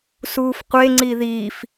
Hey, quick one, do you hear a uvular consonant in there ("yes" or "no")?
yes